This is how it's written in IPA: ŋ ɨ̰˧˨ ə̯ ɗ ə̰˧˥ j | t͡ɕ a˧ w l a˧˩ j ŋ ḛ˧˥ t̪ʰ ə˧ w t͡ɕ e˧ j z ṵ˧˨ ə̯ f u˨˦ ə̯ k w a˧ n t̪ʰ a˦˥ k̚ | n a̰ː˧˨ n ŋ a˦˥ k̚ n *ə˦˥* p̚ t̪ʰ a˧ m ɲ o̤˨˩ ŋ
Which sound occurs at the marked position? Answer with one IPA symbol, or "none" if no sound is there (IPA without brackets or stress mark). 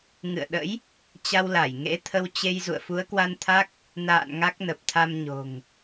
ə˨˩